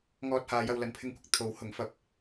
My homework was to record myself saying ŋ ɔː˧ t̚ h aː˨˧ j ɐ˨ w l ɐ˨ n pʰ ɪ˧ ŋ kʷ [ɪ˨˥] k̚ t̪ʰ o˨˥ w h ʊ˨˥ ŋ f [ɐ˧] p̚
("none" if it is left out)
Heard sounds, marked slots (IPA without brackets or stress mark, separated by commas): ɪ˨, ɐ˧